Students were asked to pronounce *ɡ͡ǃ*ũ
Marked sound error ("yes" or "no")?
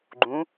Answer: no